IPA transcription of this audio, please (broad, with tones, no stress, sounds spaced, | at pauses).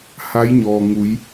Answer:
h a˧˥ j ɲ ɔː˩ ŋ u˩˧ j